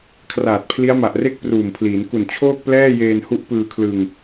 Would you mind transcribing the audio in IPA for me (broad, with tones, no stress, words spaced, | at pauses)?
kʰraː˨˩t̚pʰli˦˥a̯ma˨˩ʔre˥˩k̚ pruː˨˩m pʰliː˩˦n ku˨˩n t͡ɕʰoː˥˩k̚plɛː˥˩jeː˧n hu˦˥ʔpɯː˧kʰlɯ˧ŋ